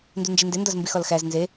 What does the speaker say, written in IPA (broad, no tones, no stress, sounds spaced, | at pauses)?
n d u n d͡ʒ i n d e n d ɒ z m b i x ɒ l x æ z n z e